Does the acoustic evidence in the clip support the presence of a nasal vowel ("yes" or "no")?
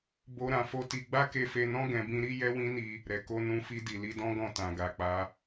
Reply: yes